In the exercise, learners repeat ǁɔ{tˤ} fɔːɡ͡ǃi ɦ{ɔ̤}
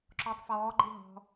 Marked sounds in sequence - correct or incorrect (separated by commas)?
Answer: correct, correct